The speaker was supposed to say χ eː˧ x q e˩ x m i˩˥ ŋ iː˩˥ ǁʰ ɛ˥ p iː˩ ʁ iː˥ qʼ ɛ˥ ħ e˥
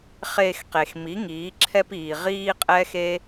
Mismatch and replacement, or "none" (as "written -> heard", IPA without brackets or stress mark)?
ħ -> x